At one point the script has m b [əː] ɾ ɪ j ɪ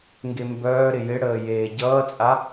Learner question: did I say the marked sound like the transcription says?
no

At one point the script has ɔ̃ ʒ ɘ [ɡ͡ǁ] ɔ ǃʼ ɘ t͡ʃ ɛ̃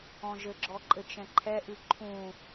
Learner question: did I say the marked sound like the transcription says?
yes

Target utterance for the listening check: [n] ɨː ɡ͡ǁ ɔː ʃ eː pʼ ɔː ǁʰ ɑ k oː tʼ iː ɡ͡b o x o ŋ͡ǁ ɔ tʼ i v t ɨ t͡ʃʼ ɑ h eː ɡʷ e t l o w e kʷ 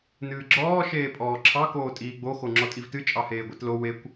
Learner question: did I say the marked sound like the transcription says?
yes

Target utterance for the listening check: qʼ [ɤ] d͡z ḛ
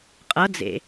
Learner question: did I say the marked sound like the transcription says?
yes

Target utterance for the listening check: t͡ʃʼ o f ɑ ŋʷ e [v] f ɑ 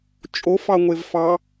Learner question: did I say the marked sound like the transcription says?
yes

